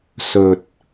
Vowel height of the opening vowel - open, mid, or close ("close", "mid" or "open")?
mid